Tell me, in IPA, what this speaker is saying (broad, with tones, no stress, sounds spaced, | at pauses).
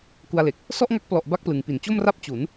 k u˧ a̯ l e˨˩ k̚ | s ɔ˥˩ ʔ ŋ a˦˥ k̚ p l ɔ˨˩ ʔ b a˥˩ k̚ p l ɯ˩˦ ŋ p i˩˦ n t͡ɕ o˥˩ m r a˥˩ p̚ t͡ɕ u˩˦ n